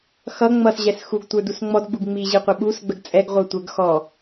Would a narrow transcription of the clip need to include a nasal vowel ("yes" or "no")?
no